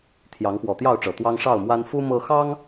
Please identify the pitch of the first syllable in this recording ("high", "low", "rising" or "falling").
rising